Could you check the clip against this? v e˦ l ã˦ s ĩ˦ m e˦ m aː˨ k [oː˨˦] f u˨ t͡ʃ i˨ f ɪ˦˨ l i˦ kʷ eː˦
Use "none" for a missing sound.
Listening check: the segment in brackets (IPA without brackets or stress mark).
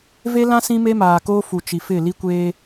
oː˦